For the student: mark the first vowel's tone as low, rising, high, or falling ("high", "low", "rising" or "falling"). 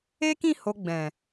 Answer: high